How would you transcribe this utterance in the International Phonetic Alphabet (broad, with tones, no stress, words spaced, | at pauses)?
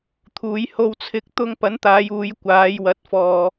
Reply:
t̪ʰuː˨˧jho˧wt͡sʰɪ˧k̚ t̪ʊ˧ŋpɐ˨˥nt̪aː˨˧j uː˨˧jkʷaː˨˧jwɐ˨˥t̚ fɔː˨